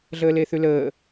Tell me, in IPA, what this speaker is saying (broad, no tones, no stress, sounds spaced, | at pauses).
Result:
ɮ əː l e θ ʉ l əː